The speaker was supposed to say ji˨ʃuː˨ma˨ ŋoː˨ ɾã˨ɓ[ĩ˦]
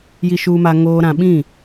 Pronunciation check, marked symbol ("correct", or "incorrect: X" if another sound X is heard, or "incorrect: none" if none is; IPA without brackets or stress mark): incorrect: ĩ˦˨